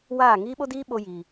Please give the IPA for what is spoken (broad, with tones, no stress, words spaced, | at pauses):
waː˦˨ ŋiː˦ɓo˦diː˦ ɓo˦jiː˧